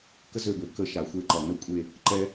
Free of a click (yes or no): no